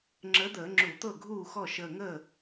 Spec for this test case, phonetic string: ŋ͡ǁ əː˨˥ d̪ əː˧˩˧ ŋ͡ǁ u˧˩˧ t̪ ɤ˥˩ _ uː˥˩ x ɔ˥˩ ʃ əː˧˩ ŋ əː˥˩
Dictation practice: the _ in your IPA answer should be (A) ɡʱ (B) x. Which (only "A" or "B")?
A